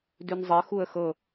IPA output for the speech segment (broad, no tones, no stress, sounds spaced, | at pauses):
d ʉ n zˤ ɜ x u ə̯ x ɤ